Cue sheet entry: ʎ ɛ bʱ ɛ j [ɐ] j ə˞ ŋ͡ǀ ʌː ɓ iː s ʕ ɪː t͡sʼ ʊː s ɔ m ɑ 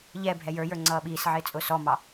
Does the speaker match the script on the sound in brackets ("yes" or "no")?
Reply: no